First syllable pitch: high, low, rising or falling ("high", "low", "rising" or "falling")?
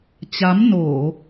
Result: rising